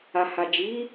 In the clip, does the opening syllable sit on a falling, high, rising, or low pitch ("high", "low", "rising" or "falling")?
low